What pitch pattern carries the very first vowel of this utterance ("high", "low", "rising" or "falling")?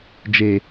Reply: low